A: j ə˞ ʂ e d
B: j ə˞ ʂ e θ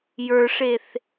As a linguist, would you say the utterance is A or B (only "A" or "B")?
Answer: B